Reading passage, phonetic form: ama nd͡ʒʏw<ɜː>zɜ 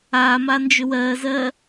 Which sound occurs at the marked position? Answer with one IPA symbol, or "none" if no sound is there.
ɜː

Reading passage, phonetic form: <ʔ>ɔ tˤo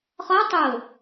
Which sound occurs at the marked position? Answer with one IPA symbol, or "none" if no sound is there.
χ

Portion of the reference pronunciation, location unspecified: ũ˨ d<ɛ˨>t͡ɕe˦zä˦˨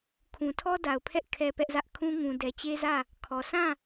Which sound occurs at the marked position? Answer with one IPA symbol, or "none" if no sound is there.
ɛ˨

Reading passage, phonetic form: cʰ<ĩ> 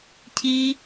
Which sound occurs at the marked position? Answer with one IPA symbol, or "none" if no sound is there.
i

